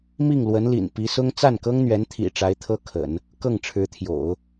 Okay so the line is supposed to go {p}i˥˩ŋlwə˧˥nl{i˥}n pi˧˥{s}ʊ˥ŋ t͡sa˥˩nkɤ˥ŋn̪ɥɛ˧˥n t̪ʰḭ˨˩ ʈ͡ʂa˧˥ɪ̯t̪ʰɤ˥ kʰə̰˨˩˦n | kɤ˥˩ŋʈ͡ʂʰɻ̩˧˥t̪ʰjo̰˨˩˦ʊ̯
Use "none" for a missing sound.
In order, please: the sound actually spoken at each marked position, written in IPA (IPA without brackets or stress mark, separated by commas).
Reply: m, ḭ˨˩, s